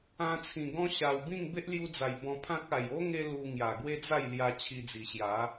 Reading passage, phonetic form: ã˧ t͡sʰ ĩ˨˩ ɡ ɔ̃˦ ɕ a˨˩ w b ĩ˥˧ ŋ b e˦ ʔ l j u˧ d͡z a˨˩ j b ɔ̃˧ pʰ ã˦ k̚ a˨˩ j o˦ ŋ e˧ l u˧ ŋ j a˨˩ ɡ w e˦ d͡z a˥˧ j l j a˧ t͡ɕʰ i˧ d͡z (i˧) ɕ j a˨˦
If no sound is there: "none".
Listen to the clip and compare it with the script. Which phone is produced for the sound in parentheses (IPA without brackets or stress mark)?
i˨˩